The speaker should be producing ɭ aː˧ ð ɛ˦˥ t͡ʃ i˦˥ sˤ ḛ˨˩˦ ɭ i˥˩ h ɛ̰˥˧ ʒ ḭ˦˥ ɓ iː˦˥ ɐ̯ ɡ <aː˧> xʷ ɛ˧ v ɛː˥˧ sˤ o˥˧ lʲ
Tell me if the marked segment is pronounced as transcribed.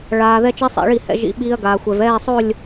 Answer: yes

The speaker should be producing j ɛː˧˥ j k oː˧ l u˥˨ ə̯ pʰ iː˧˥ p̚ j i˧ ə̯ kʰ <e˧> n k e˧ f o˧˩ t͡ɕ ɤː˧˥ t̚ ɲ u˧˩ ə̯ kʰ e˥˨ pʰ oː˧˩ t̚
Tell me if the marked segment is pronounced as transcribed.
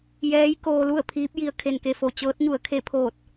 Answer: yes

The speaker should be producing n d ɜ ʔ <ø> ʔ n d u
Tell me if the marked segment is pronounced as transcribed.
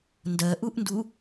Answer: no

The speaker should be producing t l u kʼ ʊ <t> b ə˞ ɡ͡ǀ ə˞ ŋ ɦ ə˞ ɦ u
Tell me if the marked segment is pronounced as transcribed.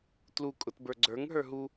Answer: yes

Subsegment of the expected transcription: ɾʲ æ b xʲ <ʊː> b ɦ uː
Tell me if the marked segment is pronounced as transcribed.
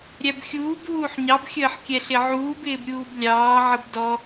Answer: no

